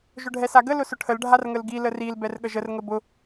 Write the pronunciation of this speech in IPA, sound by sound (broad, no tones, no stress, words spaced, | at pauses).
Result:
ʒʊɖʱɛsaɡə lʊsʊʈʰəl ɖʱarŋəlɡi ləril bɛrɠəʒər ŋəbʊ